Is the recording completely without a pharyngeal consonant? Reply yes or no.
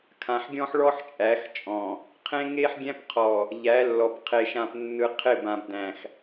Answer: no